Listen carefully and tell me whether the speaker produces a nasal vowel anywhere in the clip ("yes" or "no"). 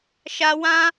yes